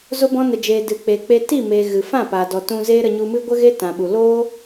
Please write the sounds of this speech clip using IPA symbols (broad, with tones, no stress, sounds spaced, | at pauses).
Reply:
z o˧ b ɔ̃˧ n ə˨ d͡ʒ eː˨ d ɨ˨ k͡p e˨ k͡p e˧ t i˦˨ m eː˨ ɣ ɨ˨ f ã˦˨ p aː˨ d ɔ˨ t ũ˧ z eː˦ ɾ ə˧ ɲ u˧ m ɨ˦ ɡʷ ə˦ ɣ e˦ t ã˨ ɓ u˨ l o˦